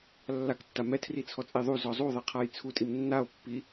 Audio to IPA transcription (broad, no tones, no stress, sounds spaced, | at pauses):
lː a k tː a m ɛ tʰ r i t͡sʰ ɔ t͡sʼ e ðˤ u z ɔ zˤ u ðˤ e qʰ a j t͡sʰ u tʼ i m nː a o̯ pː i